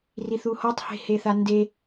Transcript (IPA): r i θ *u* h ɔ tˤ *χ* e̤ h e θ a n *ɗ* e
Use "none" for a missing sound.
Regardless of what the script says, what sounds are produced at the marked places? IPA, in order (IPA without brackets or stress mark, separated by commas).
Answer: u, h, d